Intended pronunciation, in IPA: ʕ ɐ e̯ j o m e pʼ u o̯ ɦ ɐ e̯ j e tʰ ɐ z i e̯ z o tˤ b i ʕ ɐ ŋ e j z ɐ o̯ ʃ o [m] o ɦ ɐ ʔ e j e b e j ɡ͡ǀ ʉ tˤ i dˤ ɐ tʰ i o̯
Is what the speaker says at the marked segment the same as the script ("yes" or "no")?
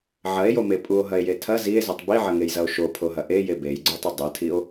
no